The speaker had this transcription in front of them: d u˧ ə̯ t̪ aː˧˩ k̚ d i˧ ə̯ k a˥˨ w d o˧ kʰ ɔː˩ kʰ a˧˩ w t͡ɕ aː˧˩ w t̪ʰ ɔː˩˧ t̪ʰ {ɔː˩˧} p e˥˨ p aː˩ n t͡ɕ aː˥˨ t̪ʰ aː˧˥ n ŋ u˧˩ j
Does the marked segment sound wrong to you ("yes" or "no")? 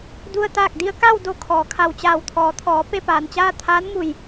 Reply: no